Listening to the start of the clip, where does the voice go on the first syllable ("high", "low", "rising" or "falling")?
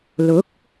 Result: rising